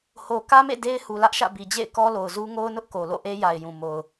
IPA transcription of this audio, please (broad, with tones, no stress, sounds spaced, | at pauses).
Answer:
h o˨ k ä˦ m ḛ˦˨ d e˦ ɪ̯ h u˨ l ä˦ ʔ ʃ ä̰˦˨ b i˨ d͡ʑ ḛ˦˨ ɪ̯ k ɔ˦ l o˨ ʊ̯ z u˦ ŋ o˦ ʊ̯ n ʊ˦ ʔ k o˨ l o̰˦˨ ʔ e˦ j a˨ ɪ̯ j ũ˨ m o˨ ʊ̯